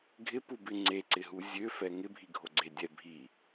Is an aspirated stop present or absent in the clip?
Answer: absent